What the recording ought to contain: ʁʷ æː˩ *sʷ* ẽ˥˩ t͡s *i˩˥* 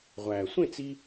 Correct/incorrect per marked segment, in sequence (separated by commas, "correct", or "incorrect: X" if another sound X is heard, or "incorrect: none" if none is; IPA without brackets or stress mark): correct, incorrect: i˧